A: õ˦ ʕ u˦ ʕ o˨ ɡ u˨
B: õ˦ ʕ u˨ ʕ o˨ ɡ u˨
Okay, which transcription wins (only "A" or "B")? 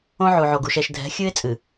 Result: B